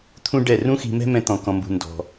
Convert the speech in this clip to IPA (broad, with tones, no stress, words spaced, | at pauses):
t̪ʰũ˦ ɖɛ˦˨ rũ˦xi̤˧mɛ̤˦ mɛ̃˦t̪ɔ̃˧kɔ̃˧mbṳ˧ ndɔ̤˧